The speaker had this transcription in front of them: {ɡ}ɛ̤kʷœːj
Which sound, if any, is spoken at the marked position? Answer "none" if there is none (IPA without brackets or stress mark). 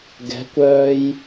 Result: ɡ